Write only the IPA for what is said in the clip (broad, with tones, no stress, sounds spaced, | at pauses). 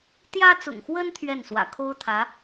t̪ j ä˥ t͡s ʊ̰˨˩ ŋ x w ə˥ n t̪ʰ ɥ ɛ˥˩ n s w ä̰˨˩ kʰ o˥ ʊ̯ t̪ʰ ä˧˥